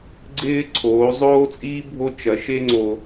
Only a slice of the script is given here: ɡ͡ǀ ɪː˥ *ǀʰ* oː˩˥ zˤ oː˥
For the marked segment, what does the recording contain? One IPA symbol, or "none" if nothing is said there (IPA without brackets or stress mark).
ǀʰ